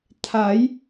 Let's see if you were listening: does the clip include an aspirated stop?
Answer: yes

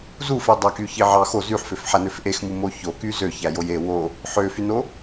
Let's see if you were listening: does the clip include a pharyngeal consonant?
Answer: yes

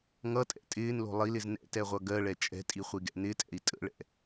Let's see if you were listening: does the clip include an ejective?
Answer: yes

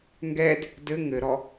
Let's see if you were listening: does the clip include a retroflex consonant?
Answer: no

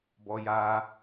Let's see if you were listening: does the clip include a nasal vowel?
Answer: no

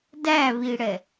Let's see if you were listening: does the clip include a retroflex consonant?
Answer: yes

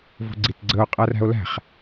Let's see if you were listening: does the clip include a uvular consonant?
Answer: yes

